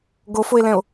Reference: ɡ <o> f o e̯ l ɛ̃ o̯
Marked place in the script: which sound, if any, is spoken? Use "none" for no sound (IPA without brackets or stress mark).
o